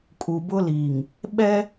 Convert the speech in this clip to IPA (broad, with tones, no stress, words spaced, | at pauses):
kʼu˨bʊ˦ liː˨ŋ | ɓɛ˦